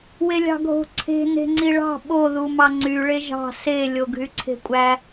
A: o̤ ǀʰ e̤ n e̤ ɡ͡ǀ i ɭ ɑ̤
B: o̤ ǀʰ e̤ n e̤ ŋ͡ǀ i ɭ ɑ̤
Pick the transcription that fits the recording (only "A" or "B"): B